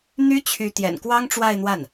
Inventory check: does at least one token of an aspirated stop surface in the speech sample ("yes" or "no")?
yes